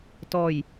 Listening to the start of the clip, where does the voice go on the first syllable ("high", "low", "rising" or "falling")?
low